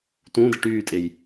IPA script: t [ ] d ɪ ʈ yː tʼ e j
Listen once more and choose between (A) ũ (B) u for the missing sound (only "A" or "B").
A